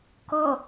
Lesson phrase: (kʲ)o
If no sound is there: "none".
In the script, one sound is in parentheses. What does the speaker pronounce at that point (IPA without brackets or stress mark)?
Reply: k